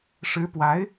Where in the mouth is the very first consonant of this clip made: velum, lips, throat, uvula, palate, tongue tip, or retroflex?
retroflex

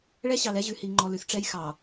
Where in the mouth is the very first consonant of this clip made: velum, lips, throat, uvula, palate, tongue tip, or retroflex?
retroflex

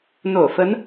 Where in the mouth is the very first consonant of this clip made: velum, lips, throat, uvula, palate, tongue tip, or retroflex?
tongue tip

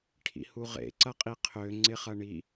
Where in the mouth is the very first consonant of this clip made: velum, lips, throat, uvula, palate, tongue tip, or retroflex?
retroflex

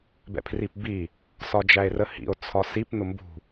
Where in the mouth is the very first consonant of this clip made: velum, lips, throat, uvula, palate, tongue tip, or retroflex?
lips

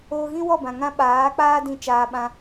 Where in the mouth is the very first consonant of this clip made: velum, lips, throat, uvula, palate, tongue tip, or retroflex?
velum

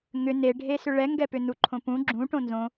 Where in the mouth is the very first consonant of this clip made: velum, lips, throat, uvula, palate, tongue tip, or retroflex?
velum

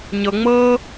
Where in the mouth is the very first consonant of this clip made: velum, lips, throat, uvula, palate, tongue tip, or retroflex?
palate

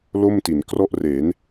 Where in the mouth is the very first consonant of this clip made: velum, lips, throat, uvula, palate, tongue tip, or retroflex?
tongue tip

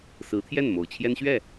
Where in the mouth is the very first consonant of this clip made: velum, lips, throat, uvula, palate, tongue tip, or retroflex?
tongue tip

